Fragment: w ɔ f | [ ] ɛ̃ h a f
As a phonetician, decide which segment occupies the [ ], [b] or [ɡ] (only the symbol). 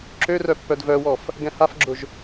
ɡ